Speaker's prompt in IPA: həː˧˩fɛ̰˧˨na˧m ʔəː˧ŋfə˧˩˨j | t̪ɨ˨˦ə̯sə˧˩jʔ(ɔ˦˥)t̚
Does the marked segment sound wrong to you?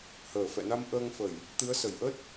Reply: yes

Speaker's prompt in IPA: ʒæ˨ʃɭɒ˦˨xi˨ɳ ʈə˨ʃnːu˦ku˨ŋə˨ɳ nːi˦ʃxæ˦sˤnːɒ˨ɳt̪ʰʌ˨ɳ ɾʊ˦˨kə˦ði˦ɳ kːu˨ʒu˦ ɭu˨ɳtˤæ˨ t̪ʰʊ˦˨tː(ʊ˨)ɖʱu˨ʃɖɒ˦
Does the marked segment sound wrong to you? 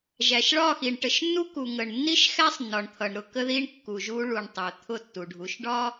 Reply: yes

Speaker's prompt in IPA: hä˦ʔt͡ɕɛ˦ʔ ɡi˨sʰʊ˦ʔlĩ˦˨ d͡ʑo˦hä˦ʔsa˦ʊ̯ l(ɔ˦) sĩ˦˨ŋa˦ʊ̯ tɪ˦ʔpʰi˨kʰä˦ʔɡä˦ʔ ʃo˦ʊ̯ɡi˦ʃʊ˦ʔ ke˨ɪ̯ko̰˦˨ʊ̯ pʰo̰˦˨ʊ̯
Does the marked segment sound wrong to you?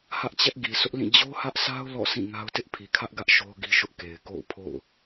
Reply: yes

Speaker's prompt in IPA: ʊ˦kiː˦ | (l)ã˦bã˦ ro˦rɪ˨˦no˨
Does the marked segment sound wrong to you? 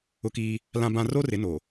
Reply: no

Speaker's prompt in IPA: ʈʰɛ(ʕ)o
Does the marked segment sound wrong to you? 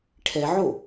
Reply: no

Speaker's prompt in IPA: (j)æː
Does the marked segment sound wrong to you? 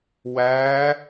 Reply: yes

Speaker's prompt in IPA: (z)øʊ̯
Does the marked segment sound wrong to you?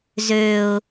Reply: no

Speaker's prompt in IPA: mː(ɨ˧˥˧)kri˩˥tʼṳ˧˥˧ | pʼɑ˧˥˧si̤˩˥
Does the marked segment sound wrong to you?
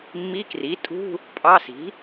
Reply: yes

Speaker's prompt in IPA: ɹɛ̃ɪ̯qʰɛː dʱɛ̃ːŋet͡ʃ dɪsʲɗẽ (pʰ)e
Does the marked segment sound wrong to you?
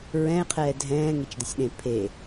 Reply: no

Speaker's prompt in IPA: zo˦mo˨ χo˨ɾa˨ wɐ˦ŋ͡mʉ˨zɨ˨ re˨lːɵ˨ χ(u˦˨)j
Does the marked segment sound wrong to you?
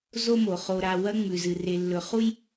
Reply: yes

